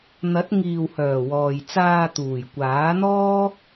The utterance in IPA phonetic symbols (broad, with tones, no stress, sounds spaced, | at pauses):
n̪ ɐ˨˥ t̚ ŋ iː˨ w h œː˨˩ w ɔː˨ j t͡s aː˧ t̪ uː˨˩ j kʷ aː˨˥ n̪ ɔː˥